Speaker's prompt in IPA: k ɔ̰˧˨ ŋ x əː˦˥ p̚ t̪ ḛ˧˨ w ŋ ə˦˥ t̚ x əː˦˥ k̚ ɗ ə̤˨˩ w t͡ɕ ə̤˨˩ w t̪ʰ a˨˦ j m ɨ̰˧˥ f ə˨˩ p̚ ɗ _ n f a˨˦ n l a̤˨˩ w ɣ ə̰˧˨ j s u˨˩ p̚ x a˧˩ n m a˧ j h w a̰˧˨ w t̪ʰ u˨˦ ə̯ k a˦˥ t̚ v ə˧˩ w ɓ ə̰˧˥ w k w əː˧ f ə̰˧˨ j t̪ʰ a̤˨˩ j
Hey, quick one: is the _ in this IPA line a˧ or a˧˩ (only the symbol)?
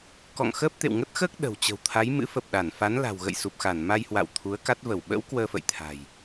a˧˩